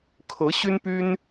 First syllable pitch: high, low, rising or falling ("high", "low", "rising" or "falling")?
rising